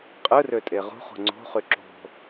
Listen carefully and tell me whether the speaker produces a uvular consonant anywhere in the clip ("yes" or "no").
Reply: yes